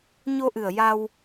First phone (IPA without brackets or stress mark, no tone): ɲ